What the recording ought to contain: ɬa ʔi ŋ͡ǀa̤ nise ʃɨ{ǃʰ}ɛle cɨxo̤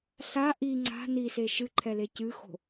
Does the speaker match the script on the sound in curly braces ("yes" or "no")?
yes